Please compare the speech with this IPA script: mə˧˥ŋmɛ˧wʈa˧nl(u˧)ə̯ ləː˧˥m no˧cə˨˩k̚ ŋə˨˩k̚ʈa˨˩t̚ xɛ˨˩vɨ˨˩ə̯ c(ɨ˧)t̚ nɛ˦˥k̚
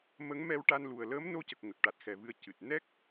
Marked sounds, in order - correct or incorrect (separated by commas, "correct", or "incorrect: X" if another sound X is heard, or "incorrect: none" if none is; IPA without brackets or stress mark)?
incorrect: u˨˩, incorrect: ɨ˨˩